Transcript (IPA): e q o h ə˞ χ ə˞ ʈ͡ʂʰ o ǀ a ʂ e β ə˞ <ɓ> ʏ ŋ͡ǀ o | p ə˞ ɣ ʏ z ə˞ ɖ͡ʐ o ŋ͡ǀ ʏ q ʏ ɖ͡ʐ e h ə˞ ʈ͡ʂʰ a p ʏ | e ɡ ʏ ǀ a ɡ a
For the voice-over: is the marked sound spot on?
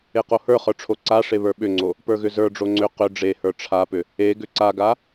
yes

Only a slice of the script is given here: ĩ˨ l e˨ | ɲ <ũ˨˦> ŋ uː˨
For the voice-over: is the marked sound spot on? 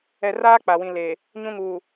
no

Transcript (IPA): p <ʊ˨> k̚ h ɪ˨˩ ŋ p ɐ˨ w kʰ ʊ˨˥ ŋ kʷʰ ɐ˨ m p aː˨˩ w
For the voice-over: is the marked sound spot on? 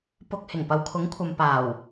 yes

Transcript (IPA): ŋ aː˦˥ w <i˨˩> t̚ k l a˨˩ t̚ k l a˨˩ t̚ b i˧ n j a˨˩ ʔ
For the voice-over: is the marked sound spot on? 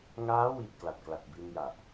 yes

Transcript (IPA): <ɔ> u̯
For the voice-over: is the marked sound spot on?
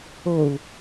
no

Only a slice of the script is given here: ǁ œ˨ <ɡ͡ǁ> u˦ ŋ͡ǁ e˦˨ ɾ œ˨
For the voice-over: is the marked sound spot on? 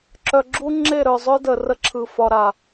yes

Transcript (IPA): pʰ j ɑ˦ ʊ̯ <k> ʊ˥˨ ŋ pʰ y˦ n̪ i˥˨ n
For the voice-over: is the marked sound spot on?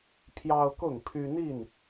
yes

